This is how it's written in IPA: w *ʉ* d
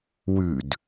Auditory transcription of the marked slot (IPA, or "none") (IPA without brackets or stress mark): ʉ